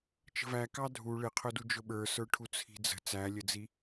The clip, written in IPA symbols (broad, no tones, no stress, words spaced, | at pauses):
t͡ʃə̤væ kɑdʱu ɭɪqʰʊdu d͡ʒʊɓə˞sə˞ʈʰu t͡sʰi̤d͡zə̤ t͡sælʲəd͡zi